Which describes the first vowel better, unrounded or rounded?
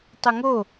unrounded